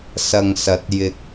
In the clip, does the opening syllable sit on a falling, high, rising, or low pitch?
low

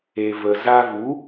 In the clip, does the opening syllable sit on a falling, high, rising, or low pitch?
low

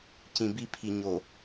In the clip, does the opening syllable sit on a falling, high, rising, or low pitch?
low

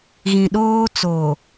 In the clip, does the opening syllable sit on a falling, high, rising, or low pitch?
low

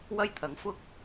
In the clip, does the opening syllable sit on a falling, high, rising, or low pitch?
high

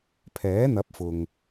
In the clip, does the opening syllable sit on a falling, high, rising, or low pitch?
rising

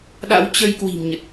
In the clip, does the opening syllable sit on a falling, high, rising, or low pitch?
rising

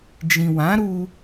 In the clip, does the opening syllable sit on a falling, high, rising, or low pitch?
low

